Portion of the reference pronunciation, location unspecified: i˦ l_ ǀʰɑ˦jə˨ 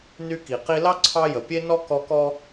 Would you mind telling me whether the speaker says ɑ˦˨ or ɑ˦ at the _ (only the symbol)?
ɑ˦